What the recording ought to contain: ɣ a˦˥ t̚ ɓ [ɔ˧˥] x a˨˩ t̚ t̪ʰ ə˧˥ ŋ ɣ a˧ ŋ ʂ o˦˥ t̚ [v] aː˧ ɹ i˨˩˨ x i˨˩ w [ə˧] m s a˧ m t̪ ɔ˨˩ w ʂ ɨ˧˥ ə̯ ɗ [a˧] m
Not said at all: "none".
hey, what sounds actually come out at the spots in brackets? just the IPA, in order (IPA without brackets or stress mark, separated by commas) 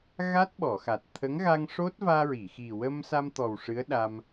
ɔ˨˩˨, v, ə˧, a˧